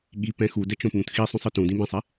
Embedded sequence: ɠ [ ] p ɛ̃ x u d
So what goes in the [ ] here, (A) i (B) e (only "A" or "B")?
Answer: A